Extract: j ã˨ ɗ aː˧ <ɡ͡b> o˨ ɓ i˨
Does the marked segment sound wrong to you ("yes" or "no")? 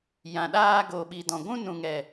yes